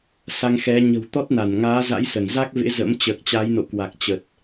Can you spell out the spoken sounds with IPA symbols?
s a˧ ŋ x ɛ˨˦ ɲ ə̤˨˩ w t̪ ɔ˦˥ t̚ n a˧˩ n ŋ aː˨˦ z a̰˧˥ j s ə˧˩ n z a˦˥ k̚ v ḛ˧˥ z ə̰˧˥ m t͡ɕ əː˨˩ k̚ t͡ɕ a˨˦ j n o̰˧˨ k w a˨˩ k̚ t͡ɕ ə˨˩ t̚

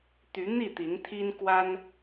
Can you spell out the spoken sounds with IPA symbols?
t̪ y˨˦ n̪ i˥˨ t̪ i˨˦ n t̪ʰ i˦ n k w a˦ n

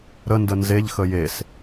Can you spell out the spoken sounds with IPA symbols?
ɾ ə n d ə n z e ʎ x ə j e s

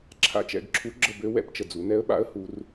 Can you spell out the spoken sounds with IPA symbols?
ǁʰ a̰˧˥ t͡ʃ ɛ̰˩˧ ɡ ǁʰ u˧˥ ɡ͡ǁ ə˧ b ø˧˥ w ɛ̰˧˥ p t͡ʃ ə˩ d͡z u˩˧ n ɛ˧˥ ə̯ ɓ a̰˧˥ ə̯ h u˩˧ r

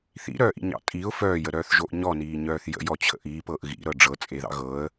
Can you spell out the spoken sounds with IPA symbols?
θ ḭ ɾ œː ʔ ḭ ɲ ɑ̰ tʼ i ʊ̯ f œː j ə ɾ œː θ ʒ o ʔ ɲ ɔ n iː ɲ œː θ j ə̰ j ɔ t͡ɕʰ ə̰ ʔ iː p ɤː ʔ ɣ ḭ ɾ ɤ ɖ͡ʐ ɤ t͡sʼ e ð ɑ̰ ɣ ɤ ə̯

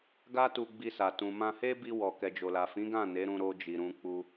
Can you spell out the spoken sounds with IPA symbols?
ɡ a˦ t u˧ ɡ͡b i˧ s a˨ t ũ˨ m ã˧ h e˦ b i˧ w ɔ˨ k ɛ˨ d͡ʒ o˨ l a˨ f ĩ˨˦ ɡ ã˦˨ n e˨˦ ɾ ũ˧ ɾ o˧ d͡ʒ i˨ ɾ ũ˧ k͡p u˧

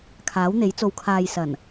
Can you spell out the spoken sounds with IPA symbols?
kʰ aː˨˥ w n̪ e˨˥ j t͡s o˨ w kʰ aː˨ j s ɐ˨˩ n

